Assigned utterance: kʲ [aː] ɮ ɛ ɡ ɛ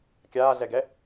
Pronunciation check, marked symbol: correct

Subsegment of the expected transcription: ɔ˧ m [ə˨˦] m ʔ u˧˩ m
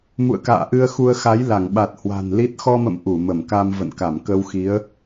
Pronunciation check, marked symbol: incorrect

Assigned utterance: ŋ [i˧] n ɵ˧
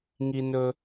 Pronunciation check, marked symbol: correct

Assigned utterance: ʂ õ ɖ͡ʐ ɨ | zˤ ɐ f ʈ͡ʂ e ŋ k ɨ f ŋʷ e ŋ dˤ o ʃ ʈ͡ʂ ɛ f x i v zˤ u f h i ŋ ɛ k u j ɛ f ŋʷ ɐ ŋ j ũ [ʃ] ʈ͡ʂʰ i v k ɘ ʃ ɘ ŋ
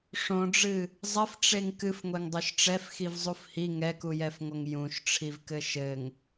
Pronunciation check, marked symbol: correct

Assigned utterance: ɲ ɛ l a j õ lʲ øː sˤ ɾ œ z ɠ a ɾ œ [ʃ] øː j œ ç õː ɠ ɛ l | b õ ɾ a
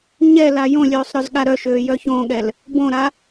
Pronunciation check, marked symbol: correct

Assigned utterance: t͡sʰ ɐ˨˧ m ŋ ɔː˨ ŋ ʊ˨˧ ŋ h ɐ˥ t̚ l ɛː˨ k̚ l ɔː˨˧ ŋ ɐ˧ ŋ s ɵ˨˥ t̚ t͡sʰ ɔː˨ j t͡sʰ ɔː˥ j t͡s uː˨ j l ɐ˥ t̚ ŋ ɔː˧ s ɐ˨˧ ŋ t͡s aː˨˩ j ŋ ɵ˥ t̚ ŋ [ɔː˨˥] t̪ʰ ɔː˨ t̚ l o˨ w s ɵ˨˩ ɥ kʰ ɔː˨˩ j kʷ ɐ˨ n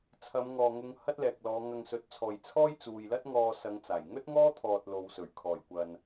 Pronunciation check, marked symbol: incorrect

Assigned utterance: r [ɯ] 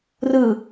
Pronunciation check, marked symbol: correct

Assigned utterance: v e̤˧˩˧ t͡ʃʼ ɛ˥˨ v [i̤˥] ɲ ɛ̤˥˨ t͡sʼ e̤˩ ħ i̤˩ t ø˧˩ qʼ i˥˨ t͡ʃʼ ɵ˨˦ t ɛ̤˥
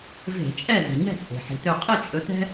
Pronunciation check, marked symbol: incorrect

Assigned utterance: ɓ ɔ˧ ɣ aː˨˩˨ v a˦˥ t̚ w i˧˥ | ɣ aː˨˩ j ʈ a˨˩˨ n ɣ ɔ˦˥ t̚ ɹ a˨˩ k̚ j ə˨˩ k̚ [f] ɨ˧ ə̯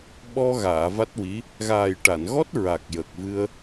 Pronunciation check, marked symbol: incorrect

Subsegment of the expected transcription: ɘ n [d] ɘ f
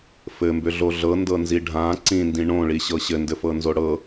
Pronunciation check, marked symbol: correct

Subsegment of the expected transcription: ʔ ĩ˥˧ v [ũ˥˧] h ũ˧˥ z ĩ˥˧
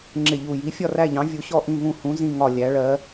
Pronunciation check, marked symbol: correct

